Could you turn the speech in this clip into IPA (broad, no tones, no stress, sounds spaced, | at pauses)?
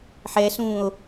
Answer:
ħ ɛː s ũː o̯